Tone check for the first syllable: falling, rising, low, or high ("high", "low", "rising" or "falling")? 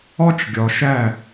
high